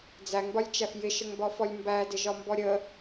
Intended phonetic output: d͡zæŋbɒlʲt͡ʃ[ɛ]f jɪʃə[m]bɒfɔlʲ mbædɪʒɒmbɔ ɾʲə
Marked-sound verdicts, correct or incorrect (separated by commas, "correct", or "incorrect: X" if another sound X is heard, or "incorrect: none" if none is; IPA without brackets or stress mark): incorrect: æ, incorrect: ŋ